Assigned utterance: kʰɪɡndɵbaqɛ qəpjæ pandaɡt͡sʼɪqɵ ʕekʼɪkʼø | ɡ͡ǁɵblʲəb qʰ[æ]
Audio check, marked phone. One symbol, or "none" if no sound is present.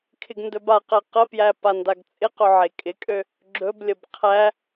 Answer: æ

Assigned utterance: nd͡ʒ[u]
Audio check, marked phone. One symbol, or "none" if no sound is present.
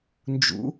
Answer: ṵ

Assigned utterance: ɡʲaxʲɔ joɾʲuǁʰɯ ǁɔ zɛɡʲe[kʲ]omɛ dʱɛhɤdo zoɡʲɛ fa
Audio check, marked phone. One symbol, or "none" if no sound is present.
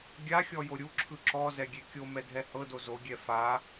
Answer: kʲ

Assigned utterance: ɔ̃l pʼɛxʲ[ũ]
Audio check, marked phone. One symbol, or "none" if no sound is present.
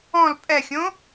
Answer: õ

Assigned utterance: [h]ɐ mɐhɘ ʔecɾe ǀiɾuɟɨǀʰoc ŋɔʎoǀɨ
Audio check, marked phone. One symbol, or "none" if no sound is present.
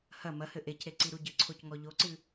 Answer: h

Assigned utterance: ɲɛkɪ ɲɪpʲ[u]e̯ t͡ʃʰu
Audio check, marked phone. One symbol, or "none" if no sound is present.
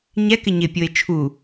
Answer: o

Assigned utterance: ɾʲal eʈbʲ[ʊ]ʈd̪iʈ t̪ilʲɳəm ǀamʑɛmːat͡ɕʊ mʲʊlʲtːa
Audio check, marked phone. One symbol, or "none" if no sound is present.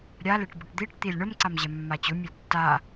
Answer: ʊ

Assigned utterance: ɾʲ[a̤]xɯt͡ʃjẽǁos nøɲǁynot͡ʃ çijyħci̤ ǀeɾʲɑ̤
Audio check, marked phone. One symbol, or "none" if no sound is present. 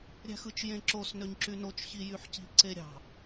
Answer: æ̤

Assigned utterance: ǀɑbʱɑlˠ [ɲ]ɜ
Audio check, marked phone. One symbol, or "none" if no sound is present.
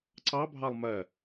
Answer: m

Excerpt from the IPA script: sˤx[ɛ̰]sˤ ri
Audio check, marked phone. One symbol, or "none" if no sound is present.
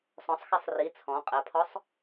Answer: ɛ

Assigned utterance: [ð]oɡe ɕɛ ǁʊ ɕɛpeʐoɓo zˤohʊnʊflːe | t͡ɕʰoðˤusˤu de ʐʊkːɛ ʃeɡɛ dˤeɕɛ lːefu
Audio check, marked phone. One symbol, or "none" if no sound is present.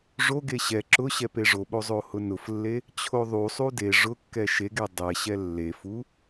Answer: ʐ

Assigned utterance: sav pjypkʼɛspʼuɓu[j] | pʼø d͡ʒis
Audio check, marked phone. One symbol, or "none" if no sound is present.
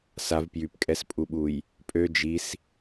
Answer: j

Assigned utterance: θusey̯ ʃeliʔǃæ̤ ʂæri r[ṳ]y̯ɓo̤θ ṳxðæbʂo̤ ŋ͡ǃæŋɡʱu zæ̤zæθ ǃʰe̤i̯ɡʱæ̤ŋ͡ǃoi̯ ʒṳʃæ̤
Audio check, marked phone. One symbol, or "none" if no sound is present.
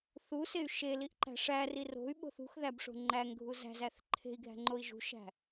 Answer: o̤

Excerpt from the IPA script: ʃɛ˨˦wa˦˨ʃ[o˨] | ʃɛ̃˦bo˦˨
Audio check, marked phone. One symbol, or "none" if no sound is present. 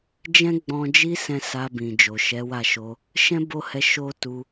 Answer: o˧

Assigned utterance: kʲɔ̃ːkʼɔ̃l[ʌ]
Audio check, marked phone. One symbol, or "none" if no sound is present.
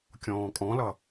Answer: ʌ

